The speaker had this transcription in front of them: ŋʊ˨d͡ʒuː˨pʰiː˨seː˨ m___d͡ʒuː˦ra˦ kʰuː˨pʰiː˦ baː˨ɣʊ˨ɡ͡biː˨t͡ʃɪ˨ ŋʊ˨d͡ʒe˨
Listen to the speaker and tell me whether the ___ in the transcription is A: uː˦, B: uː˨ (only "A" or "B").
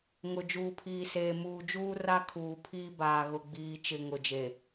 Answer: B